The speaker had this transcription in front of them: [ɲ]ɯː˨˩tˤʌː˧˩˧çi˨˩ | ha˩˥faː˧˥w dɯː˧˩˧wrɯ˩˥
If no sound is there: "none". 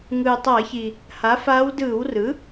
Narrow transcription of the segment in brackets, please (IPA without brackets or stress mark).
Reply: ŋ